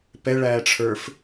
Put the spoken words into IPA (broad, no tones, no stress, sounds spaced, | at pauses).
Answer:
p ɛ ɭ æː ʈ͡ʂʰ ə˞ f